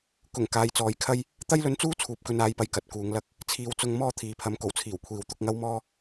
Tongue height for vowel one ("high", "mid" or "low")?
high